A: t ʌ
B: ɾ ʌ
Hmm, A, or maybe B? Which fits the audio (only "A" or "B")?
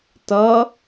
A